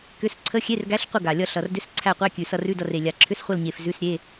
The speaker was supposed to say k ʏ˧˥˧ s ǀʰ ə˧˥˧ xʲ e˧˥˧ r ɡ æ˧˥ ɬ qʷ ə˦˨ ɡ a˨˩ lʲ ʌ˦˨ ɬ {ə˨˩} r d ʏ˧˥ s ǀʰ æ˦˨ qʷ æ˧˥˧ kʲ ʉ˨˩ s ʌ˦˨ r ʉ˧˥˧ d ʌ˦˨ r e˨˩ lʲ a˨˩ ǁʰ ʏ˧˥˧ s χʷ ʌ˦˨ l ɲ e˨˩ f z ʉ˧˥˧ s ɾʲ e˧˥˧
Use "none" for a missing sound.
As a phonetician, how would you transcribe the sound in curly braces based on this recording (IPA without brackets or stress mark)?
ʌ˨˩